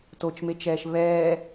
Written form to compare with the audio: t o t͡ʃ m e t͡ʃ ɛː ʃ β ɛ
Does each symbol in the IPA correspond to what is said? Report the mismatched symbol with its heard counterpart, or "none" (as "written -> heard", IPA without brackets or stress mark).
ɛ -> ɛː